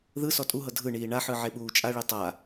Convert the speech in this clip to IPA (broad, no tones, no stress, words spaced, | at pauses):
ðɯsɔ tʼuɦɤ dʱɯɳiː ɳaħɯ ʕeɓuːt͡ʃʼaɭi tˤa